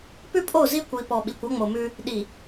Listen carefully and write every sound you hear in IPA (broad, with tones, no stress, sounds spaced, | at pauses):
p ʉ˦ pʼ o˦˨ z i˦ kʷ i˨ p ɔ˨ ɓ i˨ kʷ ɔ˦ ŋ͡m o˨ m ʉ˦ | ɗ i˨